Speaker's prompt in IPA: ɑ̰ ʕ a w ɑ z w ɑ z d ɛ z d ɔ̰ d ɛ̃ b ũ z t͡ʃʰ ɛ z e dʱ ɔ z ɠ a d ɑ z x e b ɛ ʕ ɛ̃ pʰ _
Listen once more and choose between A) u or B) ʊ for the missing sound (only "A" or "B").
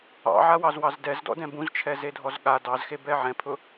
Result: B